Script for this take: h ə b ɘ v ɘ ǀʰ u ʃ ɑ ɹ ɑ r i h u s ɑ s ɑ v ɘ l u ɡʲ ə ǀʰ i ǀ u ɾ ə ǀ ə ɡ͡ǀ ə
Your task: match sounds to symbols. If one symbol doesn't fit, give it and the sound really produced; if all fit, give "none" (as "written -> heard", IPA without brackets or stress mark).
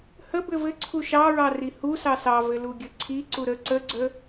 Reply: none